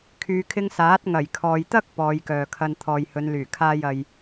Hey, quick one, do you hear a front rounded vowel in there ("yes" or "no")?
yes